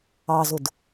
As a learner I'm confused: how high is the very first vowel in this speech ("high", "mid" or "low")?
low